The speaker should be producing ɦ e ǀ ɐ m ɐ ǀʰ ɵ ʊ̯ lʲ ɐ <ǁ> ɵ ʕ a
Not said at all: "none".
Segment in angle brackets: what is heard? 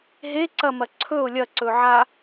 ǀ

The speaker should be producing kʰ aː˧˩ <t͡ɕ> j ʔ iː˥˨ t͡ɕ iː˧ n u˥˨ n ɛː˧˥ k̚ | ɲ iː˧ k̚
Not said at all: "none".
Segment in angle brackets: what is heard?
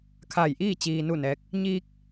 none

